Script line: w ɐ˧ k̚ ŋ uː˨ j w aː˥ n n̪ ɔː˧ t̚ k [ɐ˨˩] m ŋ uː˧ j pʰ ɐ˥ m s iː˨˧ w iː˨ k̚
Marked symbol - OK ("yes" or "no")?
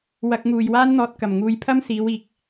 yes